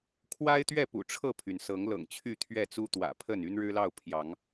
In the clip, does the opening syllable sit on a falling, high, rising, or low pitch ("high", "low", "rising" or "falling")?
high